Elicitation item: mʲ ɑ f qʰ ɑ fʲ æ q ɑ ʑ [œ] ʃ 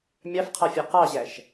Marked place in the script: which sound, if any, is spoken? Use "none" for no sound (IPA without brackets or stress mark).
æ